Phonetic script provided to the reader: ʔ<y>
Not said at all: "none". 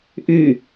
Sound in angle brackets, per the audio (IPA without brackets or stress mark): y